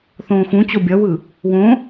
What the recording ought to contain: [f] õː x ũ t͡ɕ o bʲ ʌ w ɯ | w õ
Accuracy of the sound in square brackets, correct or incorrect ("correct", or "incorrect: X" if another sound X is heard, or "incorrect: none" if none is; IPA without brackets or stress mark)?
incorrect: θ